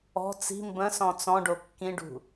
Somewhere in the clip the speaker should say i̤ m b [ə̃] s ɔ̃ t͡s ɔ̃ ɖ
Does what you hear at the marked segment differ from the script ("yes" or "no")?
no